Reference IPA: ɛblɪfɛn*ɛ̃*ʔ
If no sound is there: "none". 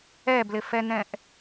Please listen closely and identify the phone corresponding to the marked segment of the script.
ɛ̃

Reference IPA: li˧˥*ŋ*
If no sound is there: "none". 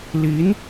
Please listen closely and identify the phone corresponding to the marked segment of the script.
n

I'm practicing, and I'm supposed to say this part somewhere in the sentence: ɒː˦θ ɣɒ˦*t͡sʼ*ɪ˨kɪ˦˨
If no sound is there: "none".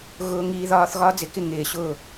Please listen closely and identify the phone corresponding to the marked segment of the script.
d͡z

